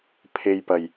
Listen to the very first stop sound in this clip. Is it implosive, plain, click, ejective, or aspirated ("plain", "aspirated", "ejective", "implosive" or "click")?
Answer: aspirated